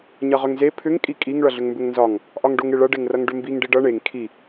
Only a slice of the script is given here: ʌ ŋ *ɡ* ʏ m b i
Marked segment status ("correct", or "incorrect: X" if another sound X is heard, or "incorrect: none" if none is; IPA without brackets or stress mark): incorrect: ɖ